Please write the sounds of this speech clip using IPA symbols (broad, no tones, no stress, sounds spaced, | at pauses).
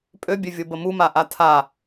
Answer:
pʼ ø bʲ ø vʲ o b ə m u m a ʔ a tʰ a